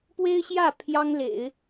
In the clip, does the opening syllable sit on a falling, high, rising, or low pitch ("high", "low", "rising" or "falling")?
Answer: high